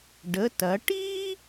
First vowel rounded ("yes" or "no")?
no